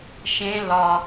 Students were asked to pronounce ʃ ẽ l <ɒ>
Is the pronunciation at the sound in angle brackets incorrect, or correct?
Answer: correct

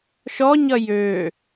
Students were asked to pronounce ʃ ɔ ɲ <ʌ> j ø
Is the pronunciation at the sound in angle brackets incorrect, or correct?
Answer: correct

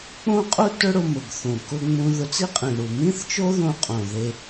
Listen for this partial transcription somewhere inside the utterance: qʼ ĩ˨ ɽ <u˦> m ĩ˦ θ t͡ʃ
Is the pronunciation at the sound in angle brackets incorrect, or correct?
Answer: incorrect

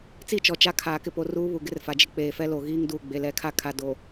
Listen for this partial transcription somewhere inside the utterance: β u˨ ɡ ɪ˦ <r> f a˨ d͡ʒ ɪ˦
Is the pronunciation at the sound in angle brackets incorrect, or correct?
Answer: correct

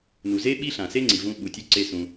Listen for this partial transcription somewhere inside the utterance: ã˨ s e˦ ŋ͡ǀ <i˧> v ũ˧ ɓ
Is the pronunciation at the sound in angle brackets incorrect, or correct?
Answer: incorrect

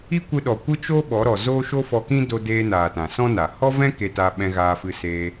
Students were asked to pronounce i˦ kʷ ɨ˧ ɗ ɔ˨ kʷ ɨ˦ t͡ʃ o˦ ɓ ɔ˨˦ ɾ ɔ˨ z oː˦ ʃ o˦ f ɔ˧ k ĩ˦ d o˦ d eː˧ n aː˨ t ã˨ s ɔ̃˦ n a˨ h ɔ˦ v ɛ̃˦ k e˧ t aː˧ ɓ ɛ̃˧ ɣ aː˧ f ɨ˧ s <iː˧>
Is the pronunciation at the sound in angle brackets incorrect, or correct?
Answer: incorrect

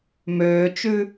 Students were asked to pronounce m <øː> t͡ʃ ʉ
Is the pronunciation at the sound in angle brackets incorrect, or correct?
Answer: correct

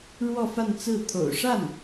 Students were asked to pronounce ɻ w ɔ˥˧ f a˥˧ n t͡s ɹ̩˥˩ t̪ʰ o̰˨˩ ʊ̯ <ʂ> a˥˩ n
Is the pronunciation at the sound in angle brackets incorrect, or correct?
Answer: correct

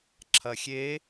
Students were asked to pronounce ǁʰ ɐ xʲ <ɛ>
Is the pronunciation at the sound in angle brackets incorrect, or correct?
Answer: incorrect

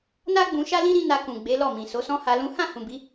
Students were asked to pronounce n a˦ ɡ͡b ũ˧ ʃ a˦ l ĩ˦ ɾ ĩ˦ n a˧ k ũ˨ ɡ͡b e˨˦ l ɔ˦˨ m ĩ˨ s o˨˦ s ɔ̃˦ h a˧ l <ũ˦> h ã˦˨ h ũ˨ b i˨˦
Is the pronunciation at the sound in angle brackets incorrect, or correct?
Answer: correct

